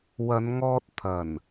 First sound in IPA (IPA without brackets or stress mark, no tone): w